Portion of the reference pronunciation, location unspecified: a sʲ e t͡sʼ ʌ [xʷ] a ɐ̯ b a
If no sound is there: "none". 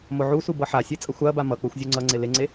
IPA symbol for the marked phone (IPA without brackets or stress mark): xʷ